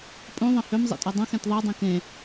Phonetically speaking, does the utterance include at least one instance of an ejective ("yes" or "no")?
yes